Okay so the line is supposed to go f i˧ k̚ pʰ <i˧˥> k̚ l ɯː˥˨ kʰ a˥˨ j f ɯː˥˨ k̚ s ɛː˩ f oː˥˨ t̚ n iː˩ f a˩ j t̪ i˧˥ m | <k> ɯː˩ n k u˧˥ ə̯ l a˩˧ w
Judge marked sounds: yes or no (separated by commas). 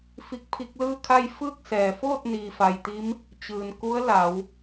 no, no